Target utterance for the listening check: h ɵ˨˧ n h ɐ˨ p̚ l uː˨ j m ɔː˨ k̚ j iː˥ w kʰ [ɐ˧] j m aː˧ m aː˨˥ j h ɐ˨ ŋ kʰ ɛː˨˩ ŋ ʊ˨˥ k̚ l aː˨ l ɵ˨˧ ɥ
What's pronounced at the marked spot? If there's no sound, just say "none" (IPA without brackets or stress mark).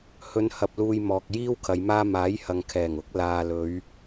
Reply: ɐ˨˧